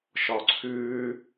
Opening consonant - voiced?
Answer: no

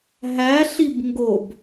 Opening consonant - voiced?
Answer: yes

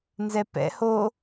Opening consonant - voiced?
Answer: yes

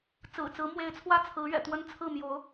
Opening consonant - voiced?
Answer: no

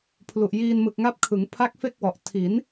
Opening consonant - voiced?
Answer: no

